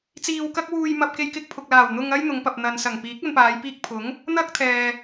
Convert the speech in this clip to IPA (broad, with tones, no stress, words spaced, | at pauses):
t͡siː˨wkɐ˧k̚ wuː˨jmɐ˨p̚ke˨j kɪ˧k̚pʰʊ˨k̚laː˨˩w n̪ʊ˧ŋɐ˥j n̪ʊ˨˧ŋpɐ˨p̚n̪ɐ˨n sɐ˨˩ŋpiː˨˥k̚ɐ˧npaː˨˧j piː˧k̚pʰʊ˨˥ŋ | n̪ɐ˥k̚t̪ʰɛː˨